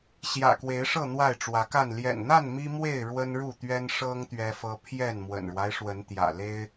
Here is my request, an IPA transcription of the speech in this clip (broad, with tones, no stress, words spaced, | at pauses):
ɕjä̰˨˩kwe˨˦ɪ̯ʂɤ˥˨ n̪wa˥˨ɪ̯ʈ͡ʂwä˨˦ka˥˨n ljɛ̰˨˩nn̪a˥˨n mi˦mwe˥˨ɪ̯ ɻwə˦nɻu˥˨t̪ɥɛ˦n ʂɤ˦ŋ t̪ɥɛ˦fɤ˦ pʰjɛ˥˨n mwə̰˨˩nɻwa˦ɪ̯ʂwə˨˦n t̪jä̰˨˩le˦ɪ̯